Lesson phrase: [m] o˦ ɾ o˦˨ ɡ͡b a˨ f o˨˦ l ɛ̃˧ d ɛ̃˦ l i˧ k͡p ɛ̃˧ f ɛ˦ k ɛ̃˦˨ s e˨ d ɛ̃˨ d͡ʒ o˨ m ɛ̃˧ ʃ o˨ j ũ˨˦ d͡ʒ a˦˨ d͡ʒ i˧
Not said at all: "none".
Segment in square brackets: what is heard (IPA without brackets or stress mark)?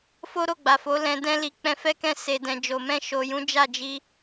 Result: f